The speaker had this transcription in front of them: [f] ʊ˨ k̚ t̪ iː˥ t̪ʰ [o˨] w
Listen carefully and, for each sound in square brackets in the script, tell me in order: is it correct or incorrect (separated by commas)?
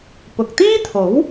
incorrect, incorrect